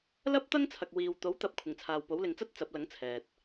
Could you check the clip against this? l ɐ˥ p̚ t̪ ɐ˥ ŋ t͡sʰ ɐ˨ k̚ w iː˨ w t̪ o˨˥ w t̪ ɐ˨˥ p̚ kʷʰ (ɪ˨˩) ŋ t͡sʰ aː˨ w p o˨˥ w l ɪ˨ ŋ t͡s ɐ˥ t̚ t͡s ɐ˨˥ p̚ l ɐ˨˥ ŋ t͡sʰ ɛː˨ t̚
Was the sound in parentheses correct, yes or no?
yes